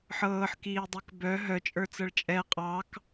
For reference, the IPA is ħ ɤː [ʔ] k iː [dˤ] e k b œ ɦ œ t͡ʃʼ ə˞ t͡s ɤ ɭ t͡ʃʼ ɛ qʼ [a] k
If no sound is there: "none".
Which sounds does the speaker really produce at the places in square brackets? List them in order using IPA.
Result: ħ, dˤ, ɑ

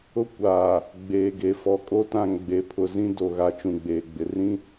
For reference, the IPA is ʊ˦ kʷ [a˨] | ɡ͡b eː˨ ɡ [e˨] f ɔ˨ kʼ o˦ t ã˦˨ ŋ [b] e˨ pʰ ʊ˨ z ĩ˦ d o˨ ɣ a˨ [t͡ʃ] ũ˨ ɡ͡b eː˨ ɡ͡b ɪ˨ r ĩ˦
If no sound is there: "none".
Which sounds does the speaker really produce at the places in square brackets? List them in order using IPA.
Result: aː˨, e˨, ɡ͡b, t͡ʃ

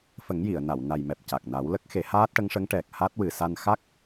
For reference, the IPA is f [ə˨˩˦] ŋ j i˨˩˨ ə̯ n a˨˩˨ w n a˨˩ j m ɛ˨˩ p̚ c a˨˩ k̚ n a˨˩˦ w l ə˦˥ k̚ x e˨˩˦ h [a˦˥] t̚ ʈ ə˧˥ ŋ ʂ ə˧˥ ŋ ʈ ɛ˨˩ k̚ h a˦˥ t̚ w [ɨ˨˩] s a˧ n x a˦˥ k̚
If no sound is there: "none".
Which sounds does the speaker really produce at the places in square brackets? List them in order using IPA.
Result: ə˨˩˦, aː˦˥, ɨ˨˩

